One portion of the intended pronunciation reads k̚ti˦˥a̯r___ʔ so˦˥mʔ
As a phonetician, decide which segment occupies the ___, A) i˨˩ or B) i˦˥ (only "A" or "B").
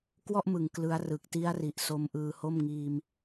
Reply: A